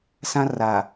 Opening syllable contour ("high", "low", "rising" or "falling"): high